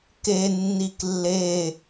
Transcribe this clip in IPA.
k e nː i k lː e

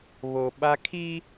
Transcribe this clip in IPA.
β o˨ ɓ a˦ kʰ i˦

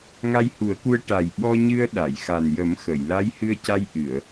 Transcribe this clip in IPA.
ŋ a˧ j h u˨˩˦ ə̯ k u˧ ə̯ ʈ a˨˩ j ɓ ɔ˧ ɲ ɨ˧ ə̯ ɗ a˨˩˨ j x a˨˩ n j ə˨˩˦ m x ə˨˩˨ j l a˧˥ j h ɨ˧ ə̯ c a˧ j ʔ ɨ˨˩˨ ə̯

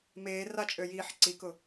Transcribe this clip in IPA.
m eː r a t͡ʃʼ ø j iː ħ ǀ i k ʊ

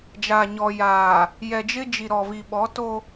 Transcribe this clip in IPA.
d͡ʒ a˨ ɲ ɔ˨ j aː˨ | j ɛ˨ d͡ʒ ɪ˦ d͡ʒ i˨ ɾ ɔ˨ v i˨ ɓ ɔ˨˦ t o˦

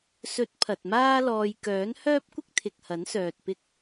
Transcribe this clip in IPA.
s ɵ˨˥ t̚ pʰ ɐ˨ t̚ m aː˥ l ɔː˧ j k œː˨˥ n h œː˥ p̚ kʷ ɪ˥ k̚ t̪ʰ ɪ˨ k̚ h ɐ˨˥ n s œː˨ t̚ p ɪ˥ k̚

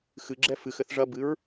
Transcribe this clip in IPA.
x ɨ ɡ͡ǁ ɛ f ɨ x ɘ θ ʐ ɐ b ɨ ɹ

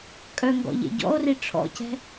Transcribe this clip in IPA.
kʼ œ ŋ ɡ ɔ̰ ʎ ḛ ɟ ɔ̰ o̯ r i ʈ͡ʂʰ ɔ̰ c ɛ̤

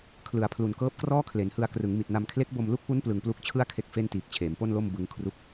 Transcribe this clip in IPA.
kʰ l ɯ˩˦ a̯ pʰ l u˨˩ n k ɤː˦˥ p̚ k r ɔː˥˩ kʰ l e˩˦ n h ɯ˧ a̯ k r ɯ˩˦ ŋ m i˨˩ t̚ n a˧ m kʰ l e˦˥ k̚ b o˧ m l u˦˥ k̚ p u˦˥ n p l ɯ˨˩ ŋ p l u˦˥ k̚ t͡ɕʰ ɯ˥˩ a̯ kʰ e˥˩ k̚ f e˥˩ n t iː˨˩ k̚ t͡ɕʰ eː˩˦ m p o˥˩ n l o˥˩ m b ɯ˦˥ ŋ kʰ r u˥˩ k̚

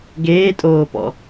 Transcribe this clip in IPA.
ɡ eː tʼ oː p ɔ̰

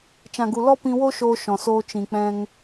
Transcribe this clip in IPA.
t͡ʃ ã˨ ɡ u˨ l ɔ˦ p ĩ˧ w o˦ ʃ oː˧ ʃ ɔ̃˨ s oː˧ t͡ʃ ĩ˨ k͡p ɛ̃˧ ŋ

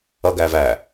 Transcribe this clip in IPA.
ʌ ɡ æː v æ

